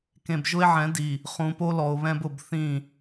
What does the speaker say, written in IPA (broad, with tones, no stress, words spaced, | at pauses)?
kẽ˨bʒʊ˦e̯ʕɛ̃˨˦di˨ | χũ˨po˦lɔ˨o̯ βɛ̃˦bʊ˨bθĩ˦˨